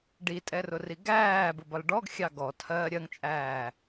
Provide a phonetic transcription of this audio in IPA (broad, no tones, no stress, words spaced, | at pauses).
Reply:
ɖitʼɛrʊri ɡæːbʊbɒl ɖɔɡxʲɑ ɡɔtʰɜː ɾʲɜŋt͡ʃʼæː